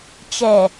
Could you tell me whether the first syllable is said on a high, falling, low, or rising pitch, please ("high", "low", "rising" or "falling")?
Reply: low